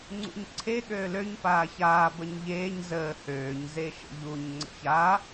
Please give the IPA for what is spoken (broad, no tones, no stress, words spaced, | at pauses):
ŋ͡ǀṵɲǀʰe ɠøːløɲ paːçaː bəɲʎeːɲ zəː høːɲ zeʃə̰ʎuɲ ŋ͡ǀə̰ça